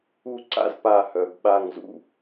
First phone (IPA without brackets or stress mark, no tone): u